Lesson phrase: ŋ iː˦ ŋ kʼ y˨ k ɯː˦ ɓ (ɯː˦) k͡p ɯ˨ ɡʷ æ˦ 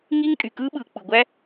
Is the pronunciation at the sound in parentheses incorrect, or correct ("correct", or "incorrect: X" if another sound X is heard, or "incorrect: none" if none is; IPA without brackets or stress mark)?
incorrect: ɯː˨